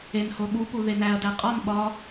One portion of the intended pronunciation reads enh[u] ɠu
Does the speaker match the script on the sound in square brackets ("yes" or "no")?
no